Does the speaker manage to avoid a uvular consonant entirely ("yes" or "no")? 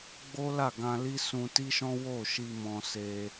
yes